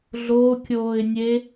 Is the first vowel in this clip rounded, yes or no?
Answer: yes